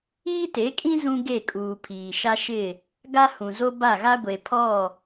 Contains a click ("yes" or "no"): no